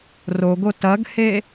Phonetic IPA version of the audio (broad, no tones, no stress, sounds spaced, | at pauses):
r o ɡ o t ɐ ɡ h e